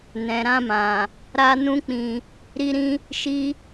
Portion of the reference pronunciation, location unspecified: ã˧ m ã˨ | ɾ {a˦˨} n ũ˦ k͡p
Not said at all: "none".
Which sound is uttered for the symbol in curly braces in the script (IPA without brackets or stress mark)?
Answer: a˦